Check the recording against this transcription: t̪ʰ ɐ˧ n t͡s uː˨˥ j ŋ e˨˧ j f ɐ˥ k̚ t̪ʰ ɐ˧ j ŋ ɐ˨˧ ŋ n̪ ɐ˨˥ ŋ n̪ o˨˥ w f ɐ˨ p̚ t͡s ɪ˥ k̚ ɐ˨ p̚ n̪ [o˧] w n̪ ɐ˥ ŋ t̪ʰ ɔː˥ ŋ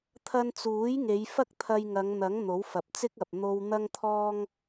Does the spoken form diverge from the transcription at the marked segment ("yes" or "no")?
no